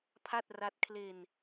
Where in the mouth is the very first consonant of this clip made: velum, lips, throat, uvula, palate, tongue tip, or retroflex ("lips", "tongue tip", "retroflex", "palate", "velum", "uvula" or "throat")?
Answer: lips